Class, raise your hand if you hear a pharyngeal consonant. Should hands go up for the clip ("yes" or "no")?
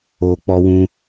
no